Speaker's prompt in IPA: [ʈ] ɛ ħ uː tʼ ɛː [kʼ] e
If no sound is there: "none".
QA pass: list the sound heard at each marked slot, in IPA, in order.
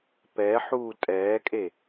p, kʼ

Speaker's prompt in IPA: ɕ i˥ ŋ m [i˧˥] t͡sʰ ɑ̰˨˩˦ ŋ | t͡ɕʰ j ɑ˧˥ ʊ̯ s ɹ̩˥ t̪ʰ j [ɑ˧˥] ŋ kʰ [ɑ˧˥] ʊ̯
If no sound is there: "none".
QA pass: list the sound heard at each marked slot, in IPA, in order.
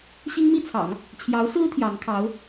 i˥˩, ɑ˧˥, ɑ˧˥

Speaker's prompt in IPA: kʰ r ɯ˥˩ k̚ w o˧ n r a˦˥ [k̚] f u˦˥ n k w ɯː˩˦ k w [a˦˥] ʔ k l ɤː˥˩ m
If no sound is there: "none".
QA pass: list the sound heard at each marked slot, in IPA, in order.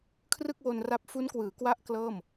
p̚, a˦˥

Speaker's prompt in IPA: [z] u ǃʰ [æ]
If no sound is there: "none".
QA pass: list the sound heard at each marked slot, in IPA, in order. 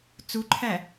t͡s, æ

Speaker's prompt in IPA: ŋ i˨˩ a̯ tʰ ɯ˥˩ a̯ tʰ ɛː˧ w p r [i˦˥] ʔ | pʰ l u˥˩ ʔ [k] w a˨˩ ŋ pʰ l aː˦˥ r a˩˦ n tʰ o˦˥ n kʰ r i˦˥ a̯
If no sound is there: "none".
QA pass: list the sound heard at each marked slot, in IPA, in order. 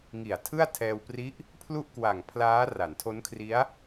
i˦˥, k

